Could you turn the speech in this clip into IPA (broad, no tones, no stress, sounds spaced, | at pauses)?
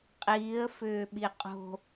qʼ iː ə̯ f ʏː ɓ i qʼ o̤